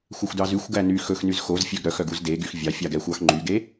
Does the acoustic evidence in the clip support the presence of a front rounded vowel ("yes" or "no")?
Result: yes